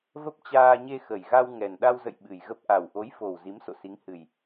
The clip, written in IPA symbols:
v ə˦˥ p̚ t͡ɕ aː˧ ɲ e˧ x ə˨˩ j ɣ a˧ w ŋ ɛ˨˩ n ɗ a˧ w z ə̰˧˨ j ɓ ɨ˨˩ j ɣ ə˦˥ p̚ ʔ a˨˩ w ʔ o˨˦ j f o˨˩ w z i˨˦ m s o̰˧˨ s i˨˦ ŋ h ɨ˨˩ j

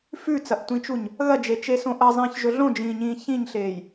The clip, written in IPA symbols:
f ʉ t͡s ɐ ʔ tʷ ĩ t͡ʃ u ɲ | ɣ ɐ d͡ʒ e t͡ʃ e s õ ʔ ɐ zˤ ĩː ç ʒ ɵ ɮ õ d͡ʒ ĩː ɲ ĩː ç ĩ ɲ ɬ eː j

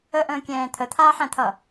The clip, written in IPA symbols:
ə ʔ ə̃ː kʲ ɛ̃ː t̪ʰ ə t̪ʰ aː ħ æ̃ t̪ʰ ʌ

